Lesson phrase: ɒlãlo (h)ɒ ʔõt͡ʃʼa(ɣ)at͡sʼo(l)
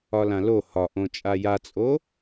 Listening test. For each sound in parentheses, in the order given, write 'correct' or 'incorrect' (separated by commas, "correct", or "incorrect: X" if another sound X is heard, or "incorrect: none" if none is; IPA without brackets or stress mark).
correct, incorrect: j, incorrect: none